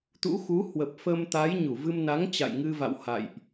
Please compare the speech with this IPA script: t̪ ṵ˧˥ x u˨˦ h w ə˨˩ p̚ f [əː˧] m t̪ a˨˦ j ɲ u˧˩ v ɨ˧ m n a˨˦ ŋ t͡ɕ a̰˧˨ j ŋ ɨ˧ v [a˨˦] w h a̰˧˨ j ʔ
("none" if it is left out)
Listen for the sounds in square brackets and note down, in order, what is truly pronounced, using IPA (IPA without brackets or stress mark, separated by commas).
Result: ə˧, a̰˧˨